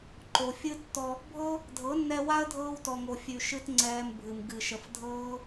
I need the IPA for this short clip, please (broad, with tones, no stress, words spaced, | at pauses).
ǃo˨fʲɨ˦tːɔ˧ | bʱɤ˦ | dʱɤ˨˦nːɛ˧wa˦ə̯ dʱɤː˧wtɔ˨ŋo˨fʲʉ˨ ʃɨ˦tŋ͡ǀɛː˧mbʱɨ˨m ɡɨ˨ʃə˨f dʱɤː˦